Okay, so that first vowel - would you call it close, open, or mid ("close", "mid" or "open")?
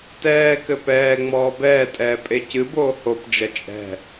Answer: mid